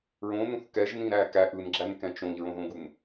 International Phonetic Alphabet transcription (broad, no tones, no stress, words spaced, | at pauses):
ɹõnũθ kɛʒnĩɾæ kæ ʔɯnɡ͡ǁænkɛ̃ t͡ʃõʎɹõðõɡun